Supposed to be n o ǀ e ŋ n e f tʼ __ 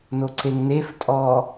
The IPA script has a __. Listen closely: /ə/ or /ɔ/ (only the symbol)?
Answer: ɔ